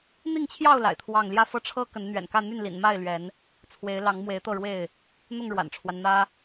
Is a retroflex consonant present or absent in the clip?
present